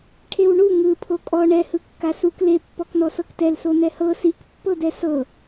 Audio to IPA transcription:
ʈʰewɳu ŋɯ pʰokʼɔ ɳɛhɯkːa suk lepːɔknɔ sɤktɛl sonɛhɤ sikpːɤdɛ sɤ

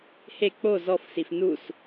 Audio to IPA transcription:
he k͡po zɔf sifnus

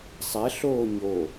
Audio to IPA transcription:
sˤɛɬoː ɲo

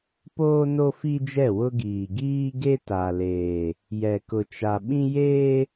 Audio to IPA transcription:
poː˦no˦fi˦d͡ʒɛ˦˨ wʊ˦ɡiː˨ ɡiː˦ɡe˦ ta˨leː˨ | jɛ˨kʊ˨t͡ʃa˨ɓĩ˦ jeː˦

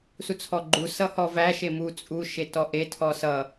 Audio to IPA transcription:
sut͡sʰɔɡ͡ǃu sʌhɔvæ ʃemu t͡sʼu ʃetɔʔe tʰɔsʌ

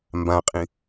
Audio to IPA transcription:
mbãqʼĩ

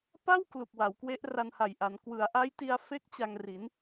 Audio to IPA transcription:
pa˥˩w klu˨˩k̚wa˩˦wkwe˦˥ʔ ra˧nha˨˩jʔa˩˦n kwɯ˩˦a̯ʔa˦˥jti˧a̯ fe˦˥k̚ t͡ɕa˧ŋri˩˦n

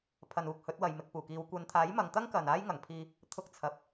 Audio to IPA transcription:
pʰɐ˨nuː˨k̚ hɵ˨˥t̚wɐ˨j mɪ˨k̚puː˨˩kiː˨˧w kʷɐ˨˧nt̪ʰaː˨˥j mɐ˨˧ŋt̪ɐ˥ŋkɐ˨n aː˥jŋɐ˨˩ŋpʰiː˧ | t̪ʰʊ˧k̚ t͡sʰɐ˨p̚

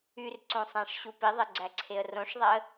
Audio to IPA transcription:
yrǀõsˤæ̃ʂɕu piðˤeɡ͡ǀæǀʰeə̯ rõʂðˤæə̯

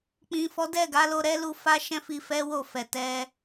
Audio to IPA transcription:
k͡pĩ˨fɔ˨˦dɛ˦˨ɡa˨˦ lo˧ɾɛ˦lu˦˨ fa˧ʃɛ̃˧ fi˧fɛ˦wo˦˨fɛ˨ tɛ˧

